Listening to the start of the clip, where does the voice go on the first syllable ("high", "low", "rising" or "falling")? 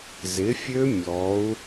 rising